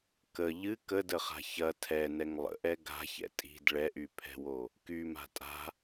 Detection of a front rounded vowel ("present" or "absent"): present